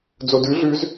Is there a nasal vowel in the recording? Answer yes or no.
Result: no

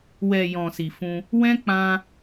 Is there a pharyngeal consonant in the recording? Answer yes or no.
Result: no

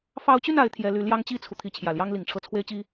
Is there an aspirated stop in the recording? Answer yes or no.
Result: yes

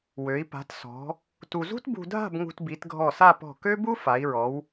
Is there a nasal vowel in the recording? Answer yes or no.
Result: no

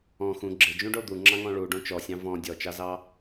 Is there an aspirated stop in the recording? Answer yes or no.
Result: no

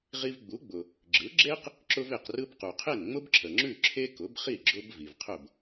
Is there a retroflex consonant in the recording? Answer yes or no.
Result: no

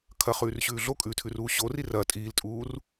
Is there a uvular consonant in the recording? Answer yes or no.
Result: yes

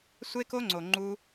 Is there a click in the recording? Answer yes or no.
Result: yes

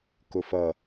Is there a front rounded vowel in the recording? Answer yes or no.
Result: no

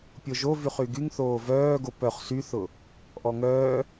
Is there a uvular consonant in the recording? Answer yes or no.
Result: yes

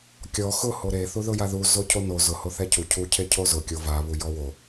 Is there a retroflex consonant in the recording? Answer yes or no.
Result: no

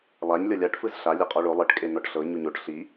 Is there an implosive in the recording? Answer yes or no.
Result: no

